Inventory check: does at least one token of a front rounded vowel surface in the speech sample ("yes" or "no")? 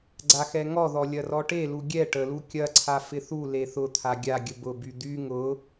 yes